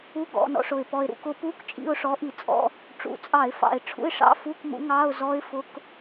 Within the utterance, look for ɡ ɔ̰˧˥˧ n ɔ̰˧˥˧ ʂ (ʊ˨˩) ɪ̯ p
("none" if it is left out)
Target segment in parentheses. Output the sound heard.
ʊ˨˩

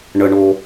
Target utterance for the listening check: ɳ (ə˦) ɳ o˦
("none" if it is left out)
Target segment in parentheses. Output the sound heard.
ə˦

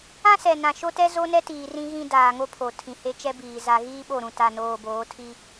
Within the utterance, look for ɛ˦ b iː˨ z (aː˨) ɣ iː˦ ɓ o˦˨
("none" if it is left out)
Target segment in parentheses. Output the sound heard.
a˨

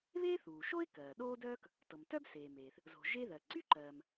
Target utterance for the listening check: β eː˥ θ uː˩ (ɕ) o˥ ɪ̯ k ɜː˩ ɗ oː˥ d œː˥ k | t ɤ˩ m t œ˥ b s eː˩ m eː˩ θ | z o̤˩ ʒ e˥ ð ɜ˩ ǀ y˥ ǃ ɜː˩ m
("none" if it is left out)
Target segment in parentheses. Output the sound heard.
ʃ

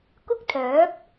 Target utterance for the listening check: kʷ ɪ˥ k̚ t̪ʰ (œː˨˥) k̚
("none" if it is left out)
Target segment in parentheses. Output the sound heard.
œː˨˥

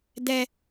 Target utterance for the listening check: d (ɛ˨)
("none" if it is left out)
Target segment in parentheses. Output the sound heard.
ɛ˨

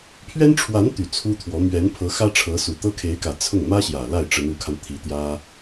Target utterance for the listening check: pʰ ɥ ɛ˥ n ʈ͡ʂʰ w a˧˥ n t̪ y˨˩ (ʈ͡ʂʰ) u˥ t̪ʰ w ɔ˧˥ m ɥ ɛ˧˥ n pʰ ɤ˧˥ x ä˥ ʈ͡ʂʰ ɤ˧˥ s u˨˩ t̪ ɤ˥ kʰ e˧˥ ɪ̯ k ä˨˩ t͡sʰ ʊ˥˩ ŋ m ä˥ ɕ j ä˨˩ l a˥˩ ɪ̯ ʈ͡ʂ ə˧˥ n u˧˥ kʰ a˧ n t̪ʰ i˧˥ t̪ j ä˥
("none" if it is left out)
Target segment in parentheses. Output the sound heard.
t͡sʰ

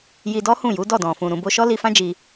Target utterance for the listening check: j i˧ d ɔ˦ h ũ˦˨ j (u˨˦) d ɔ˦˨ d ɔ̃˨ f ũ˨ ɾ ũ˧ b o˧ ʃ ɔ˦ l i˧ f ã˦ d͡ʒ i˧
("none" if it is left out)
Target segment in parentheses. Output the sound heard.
u˨˦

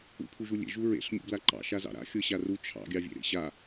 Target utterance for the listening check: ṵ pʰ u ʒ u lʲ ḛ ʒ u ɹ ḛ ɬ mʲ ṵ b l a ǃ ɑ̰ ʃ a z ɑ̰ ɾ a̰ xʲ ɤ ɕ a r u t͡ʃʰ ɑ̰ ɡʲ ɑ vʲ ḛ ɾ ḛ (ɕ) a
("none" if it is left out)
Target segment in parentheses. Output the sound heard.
ɕ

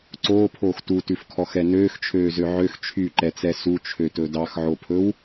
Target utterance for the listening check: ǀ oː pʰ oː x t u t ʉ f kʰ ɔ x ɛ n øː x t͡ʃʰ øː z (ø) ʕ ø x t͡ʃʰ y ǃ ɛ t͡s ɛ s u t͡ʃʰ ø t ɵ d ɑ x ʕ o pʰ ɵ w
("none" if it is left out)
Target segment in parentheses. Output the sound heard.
ø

